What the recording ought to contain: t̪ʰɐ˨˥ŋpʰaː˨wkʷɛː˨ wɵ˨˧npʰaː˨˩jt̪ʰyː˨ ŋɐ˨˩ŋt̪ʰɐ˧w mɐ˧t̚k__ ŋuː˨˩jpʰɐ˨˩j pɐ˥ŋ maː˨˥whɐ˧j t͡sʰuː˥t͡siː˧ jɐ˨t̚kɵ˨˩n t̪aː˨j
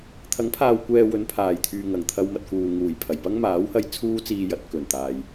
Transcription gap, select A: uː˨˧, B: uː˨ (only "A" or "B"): B